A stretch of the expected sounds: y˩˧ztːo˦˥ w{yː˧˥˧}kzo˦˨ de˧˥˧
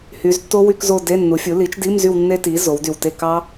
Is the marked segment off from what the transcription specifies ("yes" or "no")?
yes